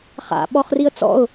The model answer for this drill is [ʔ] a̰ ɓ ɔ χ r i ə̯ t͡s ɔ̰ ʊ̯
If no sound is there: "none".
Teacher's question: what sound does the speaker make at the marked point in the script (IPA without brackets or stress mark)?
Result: χ